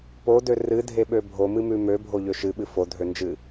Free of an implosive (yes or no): no